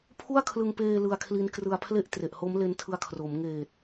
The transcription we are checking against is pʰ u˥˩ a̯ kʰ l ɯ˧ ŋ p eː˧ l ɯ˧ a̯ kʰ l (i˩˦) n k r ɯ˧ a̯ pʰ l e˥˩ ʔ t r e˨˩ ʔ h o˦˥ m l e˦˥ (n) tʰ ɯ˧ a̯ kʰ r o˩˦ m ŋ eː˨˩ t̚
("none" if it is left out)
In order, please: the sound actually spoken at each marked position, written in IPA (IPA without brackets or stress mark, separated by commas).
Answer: i˦˥, n